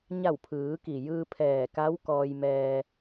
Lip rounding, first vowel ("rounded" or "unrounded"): unrounded